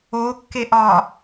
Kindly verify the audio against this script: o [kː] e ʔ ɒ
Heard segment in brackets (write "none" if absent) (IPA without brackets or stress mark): kː